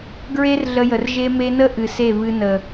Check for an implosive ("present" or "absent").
absent